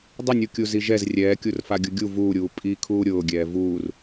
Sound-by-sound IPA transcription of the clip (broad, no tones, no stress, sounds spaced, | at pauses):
dˤ ɪ nʲ u kʲ u z i ʒ ɛ z rʲ ɛː kʲ u r f a ɡʲ ʊ ɡʲ u v uː ɾʲ uː pʼ i kʰ uː ɾʲ ʊː ɡʲ ɛː v uː r